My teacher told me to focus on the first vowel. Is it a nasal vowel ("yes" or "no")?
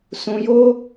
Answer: yes